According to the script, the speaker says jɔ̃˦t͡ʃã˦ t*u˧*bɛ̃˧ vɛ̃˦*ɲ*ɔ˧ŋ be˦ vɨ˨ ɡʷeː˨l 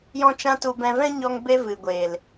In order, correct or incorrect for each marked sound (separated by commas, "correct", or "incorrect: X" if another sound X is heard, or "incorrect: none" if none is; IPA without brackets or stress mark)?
correct, correct